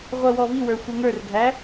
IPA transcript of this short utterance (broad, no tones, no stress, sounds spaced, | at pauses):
ʁʷ ɜ w ɔ v i w ə˞ xʷ ə˞ ŋ ə˞ r ɡʱ æ